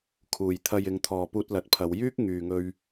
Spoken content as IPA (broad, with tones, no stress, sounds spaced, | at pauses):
kʰ uː˨˩ j t̪ʰ ɐ˨ j ɪ˨˧ ŋ t̪ʰ ɔː˨ p uː˧ t̚ l ɐ˨ t̚ pʰ ɐ˨˧ w j yː˥ k̚ ŋ yː˨ ŋ ɵ˧ ɥ